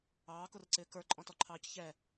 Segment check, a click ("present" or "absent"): present